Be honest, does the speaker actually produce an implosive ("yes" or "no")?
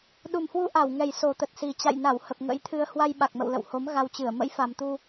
yes